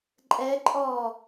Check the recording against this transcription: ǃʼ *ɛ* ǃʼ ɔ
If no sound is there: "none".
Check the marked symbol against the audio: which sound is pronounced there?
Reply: ɛ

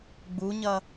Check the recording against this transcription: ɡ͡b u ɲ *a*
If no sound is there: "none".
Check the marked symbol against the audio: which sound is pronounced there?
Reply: ɐ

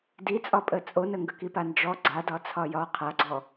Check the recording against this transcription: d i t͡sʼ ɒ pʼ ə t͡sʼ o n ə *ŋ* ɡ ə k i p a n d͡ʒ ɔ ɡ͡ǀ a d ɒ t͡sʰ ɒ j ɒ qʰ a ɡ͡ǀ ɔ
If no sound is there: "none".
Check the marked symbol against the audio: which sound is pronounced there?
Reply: ŋ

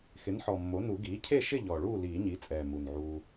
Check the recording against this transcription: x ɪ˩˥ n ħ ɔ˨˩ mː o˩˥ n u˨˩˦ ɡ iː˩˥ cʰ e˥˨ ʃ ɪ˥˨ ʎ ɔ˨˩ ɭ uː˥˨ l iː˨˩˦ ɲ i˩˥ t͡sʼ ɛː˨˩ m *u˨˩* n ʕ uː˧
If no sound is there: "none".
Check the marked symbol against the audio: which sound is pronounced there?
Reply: u˨˩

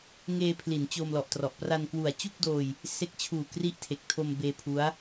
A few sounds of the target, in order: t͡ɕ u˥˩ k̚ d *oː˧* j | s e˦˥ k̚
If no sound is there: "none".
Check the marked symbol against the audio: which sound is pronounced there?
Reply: oː˧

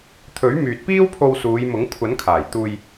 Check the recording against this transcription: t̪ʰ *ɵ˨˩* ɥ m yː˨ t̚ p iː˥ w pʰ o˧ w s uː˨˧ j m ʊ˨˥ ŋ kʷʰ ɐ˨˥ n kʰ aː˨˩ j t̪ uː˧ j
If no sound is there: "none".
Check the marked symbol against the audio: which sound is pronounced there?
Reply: ɵ˨˥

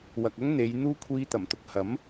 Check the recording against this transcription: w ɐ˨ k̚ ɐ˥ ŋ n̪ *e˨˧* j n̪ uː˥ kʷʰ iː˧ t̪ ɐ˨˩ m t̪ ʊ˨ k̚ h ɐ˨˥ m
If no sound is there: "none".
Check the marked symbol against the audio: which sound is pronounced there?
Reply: e˨˧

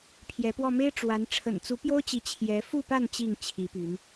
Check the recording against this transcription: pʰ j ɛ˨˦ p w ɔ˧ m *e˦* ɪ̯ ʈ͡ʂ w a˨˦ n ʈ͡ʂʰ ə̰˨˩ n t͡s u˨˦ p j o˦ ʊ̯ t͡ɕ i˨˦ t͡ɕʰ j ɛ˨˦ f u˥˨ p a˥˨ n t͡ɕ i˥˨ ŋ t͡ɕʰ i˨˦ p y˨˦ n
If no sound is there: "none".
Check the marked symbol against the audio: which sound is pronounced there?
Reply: e˦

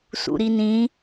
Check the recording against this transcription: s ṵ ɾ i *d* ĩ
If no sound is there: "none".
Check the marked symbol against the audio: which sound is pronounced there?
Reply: n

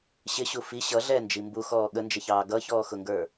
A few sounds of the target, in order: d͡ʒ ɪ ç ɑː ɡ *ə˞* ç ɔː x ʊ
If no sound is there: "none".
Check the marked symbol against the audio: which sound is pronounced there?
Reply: ʌ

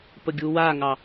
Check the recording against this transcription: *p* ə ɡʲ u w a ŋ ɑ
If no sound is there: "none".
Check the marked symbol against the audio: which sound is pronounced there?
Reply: p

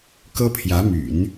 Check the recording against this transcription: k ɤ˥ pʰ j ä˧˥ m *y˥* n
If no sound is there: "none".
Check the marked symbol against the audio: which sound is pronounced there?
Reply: y̰˨˩˦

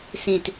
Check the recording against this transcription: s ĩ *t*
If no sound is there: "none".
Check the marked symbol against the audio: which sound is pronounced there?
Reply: t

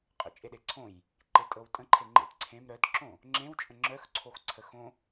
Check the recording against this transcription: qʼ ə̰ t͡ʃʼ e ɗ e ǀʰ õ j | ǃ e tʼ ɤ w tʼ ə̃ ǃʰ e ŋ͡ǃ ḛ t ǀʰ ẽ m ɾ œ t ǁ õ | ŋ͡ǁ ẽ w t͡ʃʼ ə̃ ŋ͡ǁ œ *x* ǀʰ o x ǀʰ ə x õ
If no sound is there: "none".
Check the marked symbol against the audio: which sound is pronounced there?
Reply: x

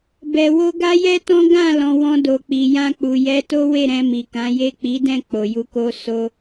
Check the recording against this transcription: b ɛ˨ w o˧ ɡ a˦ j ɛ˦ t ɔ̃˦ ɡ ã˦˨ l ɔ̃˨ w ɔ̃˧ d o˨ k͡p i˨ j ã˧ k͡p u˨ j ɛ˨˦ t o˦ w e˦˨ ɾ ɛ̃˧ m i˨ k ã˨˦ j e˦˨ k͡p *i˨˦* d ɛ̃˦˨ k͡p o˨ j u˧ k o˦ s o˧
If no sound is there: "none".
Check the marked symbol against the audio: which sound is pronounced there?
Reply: i˨˦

